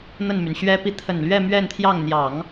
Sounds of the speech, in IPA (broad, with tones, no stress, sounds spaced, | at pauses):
n̪ ə˥˩ n m y˩ n ɕ ɥ ɛ˥ p i˧˥ t̪ʰ ə˨˩ n l ɥ ɛ˥˧ m ɥ ɛ˥˧ n t̪ʰ j ɑ˥˩ ŋ n̪ j ɑ˨˩˦ ŋ